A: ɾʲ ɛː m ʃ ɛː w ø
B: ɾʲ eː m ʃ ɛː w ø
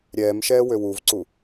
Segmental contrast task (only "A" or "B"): A